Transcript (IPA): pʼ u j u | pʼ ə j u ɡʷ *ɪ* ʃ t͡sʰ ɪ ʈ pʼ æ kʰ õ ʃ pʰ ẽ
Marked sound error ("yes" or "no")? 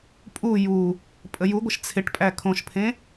no